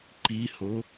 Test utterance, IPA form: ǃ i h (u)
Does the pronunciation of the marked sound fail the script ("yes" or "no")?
yes